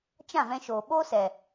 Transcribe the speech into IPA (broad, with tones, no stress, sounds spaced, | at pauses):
t͡ʃ ã˦˨ v ɛ̃˧ ʃ oː˨ ɓ o˦ s ɛ˨